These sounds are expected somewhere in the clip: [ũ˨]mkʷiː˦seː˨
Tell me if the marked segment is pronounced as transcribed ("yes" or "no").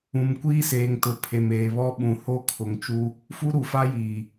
yes